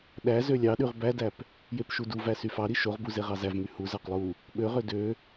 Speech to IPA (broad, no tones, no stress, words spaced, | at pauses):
ɗæ zølʲɑɗyʁ bædæp | jepʃuduvæ syfɑɾi ʃoʁbu zeʁɑzævmy huzæq lˠu | ɓøʁø dø